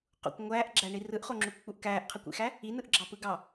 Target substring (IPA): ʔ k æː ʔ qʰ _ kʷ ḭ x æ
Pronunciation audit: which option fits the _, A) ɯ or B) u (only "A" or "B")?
A